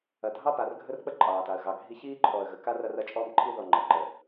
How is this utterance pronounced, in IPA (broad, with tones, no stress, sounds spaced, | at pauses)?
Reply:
ɐ˨ dʱ ɑ˦ p a˨ r ɡʱ ə˦ r k͡p ə˦ ǃʼ ɑː˨ t a˨ ə̯ ɣ ɑ˨ ɡʱ i˦ ç iː˦ ǃʰ ɔː˨ ə̯ ɣ ə˨ k a˦ r ɐ˦ r ɐ˦ t͡ʃʼ ɔː˦ m ǃʰ i˦ ð ɔ˨ ŋ͡ǃ ɐ˨ ǃ ə˨